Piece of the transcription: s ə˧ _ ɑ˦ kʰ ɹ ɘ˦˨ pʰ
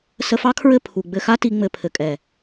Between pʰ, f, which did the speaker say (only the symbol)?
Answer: f